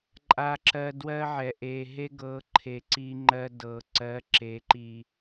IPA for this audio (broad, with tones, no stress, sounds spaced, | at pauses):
ǃʼ a˨ ǁ ɜ˨ d w ɜ˦ ʕ ɛ˨ ʔ e˨ ɦ e˦ ɡ ɤ˨˦ ǃʰ e˨ ǀ i˦ ŋ͡ǃ ɜ˦ d ɤ˨ ǀ ɜ˨˦ ǁ e˨˦ ǃ i˨